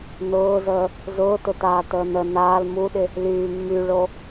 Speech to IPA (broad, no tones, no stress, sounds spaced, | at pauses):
n ʊː z əː | z ʊː t ʊ t aː t əː n ə n aː l m u ɗ ɪ | l yː mː y ɭ o